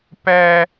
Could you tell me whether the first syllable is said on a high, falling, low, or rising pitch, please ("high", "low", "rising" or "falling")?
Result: high